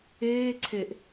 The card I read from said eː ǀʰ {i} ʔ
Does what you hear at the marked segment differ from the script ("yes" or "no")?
yes